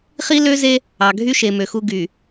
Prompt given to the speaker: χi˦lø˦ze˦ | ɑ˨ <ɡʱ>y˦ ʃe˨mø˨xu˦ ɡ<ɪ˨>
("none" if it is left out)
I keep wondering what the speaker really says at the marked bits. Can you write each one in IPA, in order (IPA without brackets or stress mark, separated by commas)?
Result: ɡʱ, y˨